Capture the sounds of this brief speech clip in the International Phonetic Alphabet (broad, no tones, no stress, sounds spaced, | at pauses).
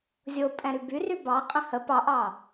zʲ o pʼ ɛ̃ ɾ y b y r y b ɑ qʼ ə̃ h ə p ɑ ʔ ɑ